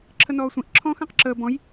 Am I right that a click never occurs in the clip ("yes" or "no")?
no